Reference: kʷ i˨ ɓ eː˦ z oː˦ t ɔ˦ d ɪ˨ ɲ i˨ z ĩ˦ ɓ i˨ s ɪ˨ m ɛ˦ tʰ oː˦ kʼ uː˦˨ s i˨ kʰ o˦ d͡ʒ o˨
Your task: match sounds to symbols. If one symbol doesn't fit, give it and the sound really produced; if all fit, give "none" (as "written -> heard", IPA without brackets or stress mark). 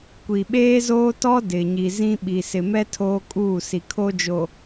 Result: none